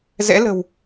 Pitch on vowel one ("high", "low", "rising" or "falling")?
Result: rising